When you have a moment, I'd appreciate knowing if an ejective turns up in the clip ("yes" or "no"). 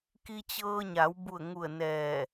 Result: no